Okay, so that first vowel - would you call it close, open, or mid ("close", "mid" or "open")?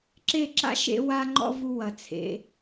mid